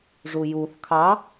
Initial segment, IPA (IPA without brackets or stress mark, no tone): ʐ